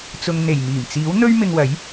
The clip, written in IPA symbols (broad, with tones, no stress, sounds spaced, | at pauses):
t͡s ʊ˨ ŋ n̪ e˨˩ j m iː˨˩ m t͡s iː˨˥ w n̪ ɵ˥ ɥ m ɪ˧ ŋ w ɐ˨˥ j